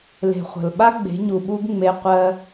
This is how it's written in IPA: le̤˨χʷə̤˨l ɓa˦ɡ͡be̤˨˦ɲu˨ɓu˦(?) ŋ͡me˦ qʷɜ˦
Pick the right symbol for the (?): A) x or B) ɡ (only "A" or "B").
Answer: B